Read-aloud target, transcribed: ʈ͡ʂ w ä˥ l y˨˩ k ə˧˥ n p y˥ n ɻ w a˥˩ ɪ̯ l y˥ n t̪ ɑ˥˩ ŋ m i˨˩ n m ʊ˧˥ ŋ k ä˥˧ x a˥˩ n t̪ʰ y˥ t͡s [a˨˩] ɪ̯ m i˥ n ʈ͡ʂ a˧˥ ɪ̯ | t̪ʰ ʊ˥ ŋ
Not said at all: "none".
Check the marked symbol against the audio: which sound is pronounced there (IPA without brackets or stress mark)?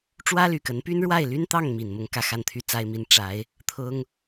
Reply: a˥